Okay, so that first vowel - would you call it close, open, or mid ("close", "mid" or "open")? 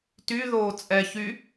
close